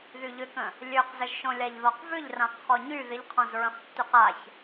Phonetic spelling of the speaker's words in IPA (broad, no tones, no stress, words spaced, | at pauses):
ðyʎʏkə̃ | lʲøqzəʒʃõlʲaʎ ðɔqvʏʎrãq χɔɲy ðɪʎqʰɔ̃zɹə̃χtːyq aç